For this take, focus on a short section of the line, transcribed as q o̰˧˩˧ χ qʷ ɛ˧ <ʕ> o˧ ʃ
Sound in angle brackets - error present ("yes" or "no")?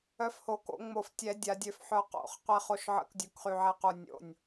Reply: yes